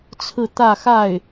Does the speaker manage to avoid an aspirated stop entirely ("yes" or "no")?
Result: no